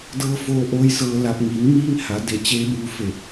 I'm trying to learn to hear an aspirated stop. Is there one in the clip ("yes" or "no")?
no